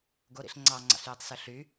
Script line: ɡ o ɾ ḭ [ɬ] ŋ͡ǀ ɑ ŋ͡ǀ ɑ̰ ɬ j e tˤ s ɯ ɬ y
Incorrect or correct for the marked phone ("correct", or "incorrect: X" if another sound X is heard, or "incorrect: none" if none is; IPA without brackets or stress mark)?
correct